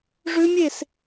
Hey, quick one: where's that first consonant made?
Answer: retroflex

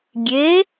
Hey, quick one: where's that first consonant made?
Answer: velum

